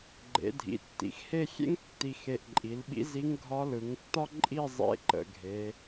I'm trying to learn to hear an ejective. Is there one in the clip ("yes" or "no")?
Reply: yes